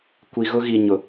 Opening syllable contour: low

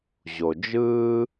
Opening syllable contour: low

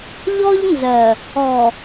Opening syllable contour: high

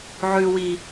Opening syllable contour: low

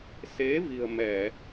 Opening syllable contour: rising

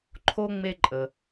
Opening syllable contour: high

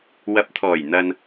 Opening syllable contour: rising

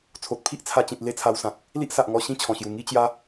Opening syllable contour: low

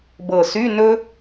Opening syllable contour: low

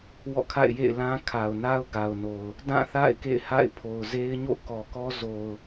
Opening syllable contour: falling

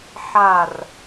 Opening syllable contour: falling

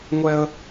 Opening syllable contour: high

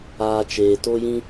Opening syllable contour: low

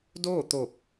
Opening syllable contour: falling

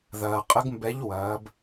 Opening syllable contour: low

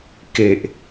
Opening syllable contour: low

